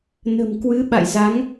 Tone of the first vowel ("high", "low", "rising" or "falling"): low